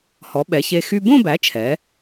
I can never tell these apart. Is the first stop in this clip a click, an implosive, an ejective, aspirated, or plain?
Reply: implosive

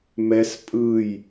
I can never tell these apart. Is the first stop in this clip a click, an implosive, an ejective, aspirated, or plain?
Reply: ejective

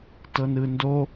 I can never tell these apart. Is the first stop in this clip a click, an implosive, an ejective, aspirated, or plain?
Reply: plain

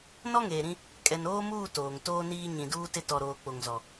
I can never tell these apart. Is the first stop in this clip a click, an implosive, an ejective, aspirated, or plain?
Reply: ejective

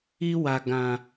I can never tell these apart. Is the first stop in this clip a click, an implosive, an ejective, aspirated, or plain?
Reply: plain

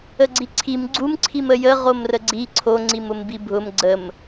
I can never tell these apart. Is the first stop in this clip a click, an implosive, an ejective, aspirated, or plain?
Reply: click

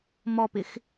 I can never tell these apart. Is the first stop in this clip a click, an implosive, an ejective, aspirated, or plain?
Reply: plain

